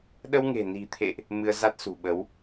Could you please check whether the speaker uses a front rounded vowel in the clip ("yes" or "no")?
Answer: no